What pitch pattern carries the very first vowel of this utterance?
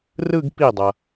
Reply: falling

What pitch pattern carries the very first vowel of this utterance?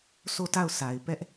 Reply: falling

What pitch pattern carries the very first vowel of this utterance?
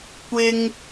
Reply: high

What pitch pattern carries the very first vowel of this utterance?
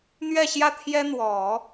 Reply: falling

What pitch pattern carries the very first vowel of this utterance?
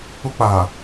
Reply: high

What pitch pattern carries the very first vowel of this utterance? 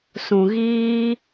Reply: low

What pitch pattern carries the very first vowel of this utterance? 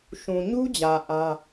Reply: low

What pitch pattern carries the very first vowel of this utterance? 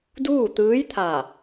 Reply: falling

